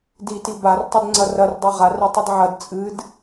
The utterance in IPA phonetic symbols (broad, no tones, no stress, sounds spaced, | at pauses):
d i t i b a r tˤ ɘ d ŋ͡ǀ ɐ r ɐ r dˤ ɛ ʁ a r ɛ tˤ ɨ d ʕ ɐ d t͡sʼ ɨ d